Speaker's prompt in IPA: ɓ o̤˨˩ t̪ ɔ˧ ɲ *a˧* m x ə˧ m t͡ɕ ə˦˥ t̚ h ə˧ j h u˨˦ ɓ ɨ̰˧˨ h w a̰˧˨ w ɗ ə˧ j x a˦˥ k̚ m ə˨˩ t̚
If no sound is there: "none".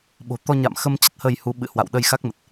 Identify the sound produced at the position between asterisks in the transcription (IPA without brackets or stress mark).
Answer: a̰˧˨